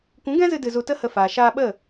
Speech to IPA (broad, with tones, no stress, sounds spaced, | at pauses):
kʷ ũ˨˦ ɡ ɛ̃˦ z ɨ˧ d ɨ˧ z u˧ t ə˦ h ə˧ f aː˨ ʃ aː˧ ɓ ə˦˨